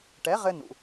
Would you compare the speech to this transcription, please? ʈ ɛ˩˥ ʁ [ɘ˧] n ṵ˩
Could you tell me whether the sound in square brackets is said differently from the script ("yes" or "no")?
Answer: no